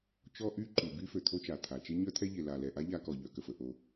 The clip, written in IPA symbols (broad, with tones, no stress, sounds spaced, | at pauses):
t͡ʃ ɔ˥ ʔ y˥ ǃ y˩ b y˥ f ø˩ t̪ʰ o˥ t͡ʃ a˩ t̪ʰ a˩ t͡ʃ e˥ ɲ œ˥ t̪ʰ ɛ˥ ʎ e˩ l a˩ l ɛ˩ ʔ a˥ ʎ a˥ k ɔ˩ ʎ œ˩ k ə˩ f ə˩ ʔ o˩